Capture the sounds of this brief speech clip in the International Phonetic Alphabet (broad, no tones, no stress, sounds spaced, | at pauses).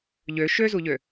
ʎ ø ʃ ø z u ʎ ø